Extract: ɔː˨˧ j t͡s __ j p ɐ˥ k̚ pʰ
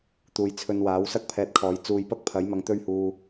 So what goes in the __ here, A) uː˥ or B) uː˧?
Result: B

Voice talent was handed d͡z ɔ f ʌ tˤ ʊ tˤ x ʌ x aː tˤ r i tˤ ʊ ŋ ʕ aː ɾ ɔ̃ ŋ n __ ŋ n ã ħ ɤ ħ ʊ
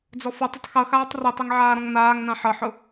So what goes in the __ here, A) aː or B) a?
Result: A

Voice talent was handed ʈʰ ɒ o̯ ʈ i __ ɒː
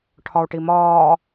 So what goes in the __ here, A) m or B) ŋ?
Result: A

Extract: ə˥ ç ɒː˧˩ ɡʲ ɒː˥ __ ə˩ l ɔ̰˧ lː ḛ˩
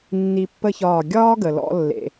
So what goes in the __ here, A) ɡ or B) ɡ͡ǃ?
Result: A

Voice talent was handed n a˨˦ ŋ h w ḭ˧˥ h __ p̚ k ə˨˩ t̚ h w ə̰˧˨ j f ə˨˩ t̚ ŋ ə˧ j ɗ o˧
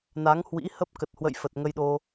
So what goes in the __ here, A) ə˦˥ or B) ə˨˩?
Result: A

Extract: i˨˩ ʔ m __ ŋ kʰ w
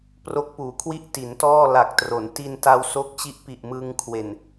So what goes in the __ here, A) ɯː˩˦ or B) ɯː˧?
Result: B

